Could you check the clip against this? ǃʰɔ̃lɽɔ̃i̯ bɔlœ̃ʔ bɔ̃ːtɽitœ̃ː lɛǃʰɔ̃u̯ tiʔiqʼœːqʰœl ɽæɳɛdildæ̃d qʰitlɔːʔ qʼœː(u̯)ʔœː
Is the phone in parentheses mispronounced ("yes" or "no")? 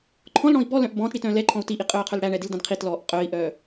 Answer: yes